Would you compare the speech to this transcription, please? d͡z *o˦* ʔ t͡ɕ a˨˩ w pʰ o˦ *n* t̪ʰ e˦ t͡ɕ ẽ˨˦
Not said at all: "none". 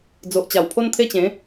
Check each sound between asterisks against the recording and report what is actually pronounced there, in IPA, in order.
o˨, n

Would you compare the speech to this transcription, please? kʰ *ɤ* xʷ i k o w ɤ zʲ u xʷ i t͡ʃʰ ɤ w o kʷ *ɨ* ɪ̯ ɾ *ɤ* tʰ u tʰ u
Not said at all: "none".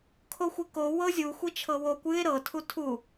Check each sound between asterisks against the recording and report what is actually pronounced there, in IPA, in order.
o, ɨ, ɤ

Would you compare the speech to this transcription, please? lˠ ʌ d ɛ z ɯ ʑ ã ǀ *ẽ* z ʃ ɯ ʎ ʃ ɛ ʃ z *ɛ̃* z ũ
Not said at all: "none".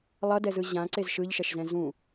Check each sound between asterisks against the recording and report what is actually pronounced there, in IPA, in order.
e, ɛ̃

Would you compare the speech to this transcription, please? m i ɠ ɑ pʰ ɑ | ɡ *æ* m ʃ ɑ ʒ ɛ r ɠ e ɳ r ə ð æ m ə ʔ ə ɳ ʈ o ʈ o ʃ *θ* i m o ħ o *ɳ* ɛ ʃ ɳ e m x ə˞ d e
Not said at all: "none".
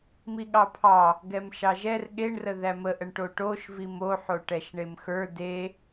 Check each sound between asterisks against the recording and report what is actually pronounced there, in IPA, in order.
ɛ, v, ʈ

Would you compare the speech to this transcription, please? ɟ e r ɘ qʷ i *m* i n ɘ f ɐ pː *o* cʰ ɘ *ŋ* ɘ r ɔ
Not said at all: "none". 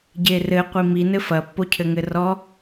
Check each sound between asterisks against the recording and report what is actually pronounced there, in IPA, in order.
m, o, ŋ

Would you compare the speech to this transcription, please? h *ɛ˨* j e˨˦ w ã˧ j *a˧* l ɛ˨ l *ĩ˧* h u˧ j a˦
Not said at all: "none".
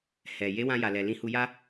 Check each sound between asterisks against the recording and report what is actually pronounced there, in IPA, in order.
ɛ˨, a˨, ĩ˧

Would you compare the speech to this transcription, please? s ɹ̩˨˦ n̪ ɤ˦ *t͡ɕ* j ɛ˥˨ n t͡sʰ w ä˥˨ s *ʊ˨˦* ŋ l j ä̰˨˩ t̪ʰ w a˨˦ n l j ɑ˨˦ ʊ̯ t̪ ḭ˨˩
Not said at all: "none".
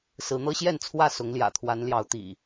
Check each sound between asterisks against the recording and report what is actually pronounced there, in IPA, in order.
ɕ, ʊ˨˦

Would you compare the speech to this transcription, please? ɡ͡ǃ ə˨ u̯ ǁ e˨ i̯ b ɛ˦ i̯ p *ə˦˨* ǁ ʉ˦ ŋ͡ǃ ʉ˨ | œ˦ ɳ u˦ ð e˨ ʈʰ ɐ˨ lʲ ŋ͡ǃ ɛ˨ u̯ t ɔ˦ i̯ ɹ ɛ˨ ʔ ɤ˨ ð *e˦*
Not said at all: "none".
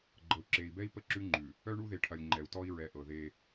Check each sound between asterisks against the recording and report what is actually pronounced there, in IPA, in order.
ə˦˨, e˦

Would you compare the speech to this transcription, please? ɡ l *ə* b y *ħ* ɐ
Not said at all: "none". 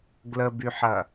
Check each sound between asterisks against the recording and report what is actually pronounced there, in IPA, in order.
ə, ħ

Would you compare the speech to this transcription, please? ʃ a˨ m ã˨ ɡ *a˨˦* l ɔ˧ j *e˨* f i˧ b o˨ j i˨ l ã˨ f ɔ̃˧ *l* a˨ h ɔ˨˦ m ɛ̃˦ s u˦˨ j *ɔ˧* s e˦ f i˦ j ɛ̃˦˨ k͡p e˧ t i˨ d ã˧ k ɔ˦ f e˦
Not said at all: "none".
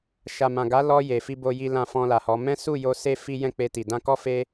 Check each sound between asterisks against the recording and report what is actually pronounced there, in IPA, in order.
a˨˦, e˨, l, o˧

